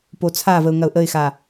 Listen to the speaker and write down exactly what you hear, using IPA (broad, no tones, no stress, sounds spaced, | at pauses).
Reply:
p o t͡sʰ a v ə ʊ̯ ŋ ɐ ʊ̯ ʔ ə ɪ̯ x a